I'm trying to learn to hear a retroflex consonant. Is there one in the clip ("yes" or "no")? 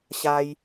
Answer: no